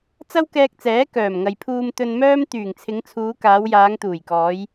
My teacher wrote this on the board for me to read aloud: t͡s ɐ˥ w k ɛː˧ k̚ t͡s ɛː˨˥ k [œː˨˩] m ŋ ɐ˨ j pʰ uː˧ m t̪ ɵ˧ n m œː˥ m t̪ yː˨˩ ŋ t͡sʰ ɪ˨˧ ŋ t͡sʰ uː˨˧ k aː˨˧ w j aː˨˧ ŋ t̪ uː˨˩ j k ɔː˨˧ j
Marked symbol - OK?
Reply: yes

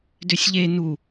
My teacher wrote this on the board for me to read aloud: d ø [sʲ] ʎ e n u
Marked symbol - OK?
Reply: yes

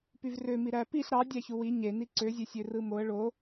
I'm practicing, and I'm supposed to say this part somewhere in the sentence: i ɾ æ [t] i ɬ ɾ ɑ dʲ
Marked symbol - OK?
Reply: no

